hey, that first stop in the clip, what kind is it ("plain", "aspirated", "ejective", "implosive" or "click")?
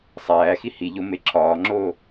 click